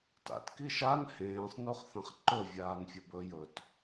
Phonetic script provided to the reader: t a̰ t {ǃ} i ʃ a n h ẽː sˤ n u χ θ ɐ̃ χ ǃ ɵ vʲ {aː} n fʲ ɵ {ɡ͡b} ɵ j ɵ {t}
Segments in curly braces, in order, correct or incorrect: incorrect: k, correct, incorrect: b, correct

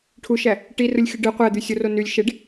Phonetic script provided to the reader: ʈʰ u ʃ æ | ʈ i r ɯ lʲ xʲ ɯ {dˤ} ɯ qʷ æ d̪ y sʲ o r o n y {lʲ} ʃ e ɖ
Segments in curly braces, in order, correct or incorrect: incorrect: ɖ, correct

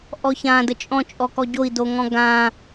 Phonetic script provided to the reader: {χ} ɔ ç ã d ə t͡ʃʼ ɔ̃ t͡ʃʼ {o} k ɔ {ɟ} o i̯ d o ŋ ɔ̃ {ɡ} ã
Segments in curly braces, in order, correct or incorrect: incorrect: ʔ, incorrect: ɔ, correct, correct

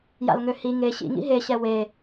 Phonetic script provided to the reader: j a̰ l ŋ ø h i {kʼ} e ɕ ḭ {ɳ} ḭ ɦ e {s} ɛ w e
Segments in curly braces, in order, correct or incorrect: incorrect: ŋ, incorrect: ŋ, incorrect: ɕ

